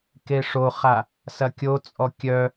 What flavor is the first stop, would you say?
plain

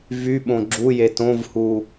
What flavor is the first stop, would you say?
implosive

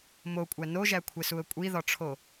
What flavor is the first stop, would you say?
ejective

